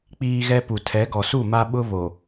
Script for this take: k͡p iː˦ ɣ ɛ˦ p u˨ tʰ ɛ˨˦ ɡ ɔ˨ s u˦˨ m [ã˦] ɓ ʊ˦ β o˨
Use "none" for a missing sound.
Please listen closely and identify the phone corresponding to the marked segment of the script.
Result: a˦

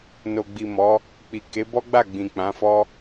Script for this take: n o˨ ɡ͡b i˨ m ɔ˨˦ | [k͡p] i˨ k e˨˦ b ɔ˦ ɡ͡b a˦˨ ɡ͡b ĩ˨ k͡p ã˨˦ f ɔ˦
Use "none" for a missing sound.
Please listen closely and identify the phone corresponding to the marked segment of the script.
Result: k͡p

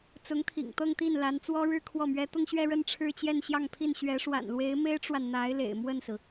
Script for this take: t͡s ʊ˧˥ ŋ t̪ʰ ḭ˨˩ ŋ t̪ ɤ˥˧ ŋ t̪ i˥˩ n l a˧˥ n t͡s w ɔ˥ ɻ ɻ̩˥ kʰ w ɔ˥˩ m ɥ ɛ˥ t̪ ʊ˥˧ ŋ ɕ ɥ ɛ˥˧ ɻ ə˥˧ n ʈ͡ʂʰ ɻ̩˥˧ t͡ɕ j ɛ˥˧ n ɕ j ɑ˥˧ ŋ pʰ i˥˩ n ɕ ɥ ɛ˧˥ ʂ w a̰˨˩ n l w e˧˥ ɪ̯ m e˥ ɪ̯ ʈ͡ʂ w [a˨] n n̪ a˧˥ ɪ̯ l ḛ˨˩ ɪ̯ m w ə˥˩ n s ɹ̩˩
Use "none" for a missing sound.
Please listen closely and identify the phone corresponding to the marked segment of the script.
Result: a˨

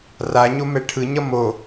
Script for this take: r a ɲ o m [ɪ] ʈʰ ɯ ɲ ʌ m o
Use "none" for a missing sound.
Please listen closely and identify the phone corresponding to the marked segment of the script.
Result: ɛ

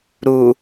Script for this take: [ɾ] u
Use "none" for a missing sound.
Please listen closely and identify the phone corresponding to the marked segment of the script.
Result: ɾ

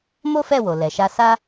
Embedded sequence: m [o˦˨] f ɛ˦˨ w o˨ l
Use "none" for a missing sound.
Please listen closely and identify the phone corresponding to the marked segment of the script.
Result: o˦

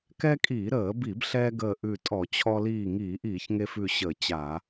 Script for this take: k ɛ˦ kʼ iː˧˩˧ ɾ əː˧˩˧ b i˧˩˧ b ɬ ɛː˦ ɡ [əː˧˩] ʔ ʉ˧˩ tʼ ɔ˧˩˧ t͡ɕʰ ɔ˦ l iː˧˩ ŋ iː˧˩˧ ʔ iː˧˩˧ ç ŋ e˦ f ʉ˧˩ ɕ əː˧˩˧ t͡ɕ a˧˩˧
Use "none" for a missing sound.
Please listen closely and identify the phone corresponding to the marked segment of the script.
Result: əː˧˩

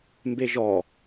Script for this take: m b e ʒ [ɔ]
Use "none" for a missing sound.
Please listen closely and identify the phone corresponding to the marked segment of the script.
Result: ɔ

